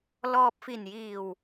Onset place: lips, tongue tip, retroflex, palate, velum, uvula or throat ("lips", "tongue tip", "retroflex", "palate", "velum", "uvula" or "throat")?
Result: tongue tip